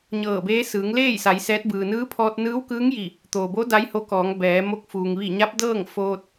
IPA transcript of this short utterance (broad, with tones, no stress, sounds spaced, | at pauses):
ɲ ɤː˧˩ b eː˧˥ s ɯː˩˧ ŋ l eː˥˨ j s a˩˧ j s ɛː˧˥ t̚ b ɯː˩ n ɯː˧˥ pʰ ɔː˧ t̚ n ɯː˧˥ w k ɯː˧˥ ŋ j i˧˩ | t̪ oː˩ b o˧˥ d a˧˥ j h o˧˥ k ɔː˩˧ ŋ b ɛː˩˧ m o˧˥ k̚ f uː˩ ŋ ʋ i˧˩ ɲ a˧˥ p̚ d ɤː˥˨ ŋ f oː˧ t̚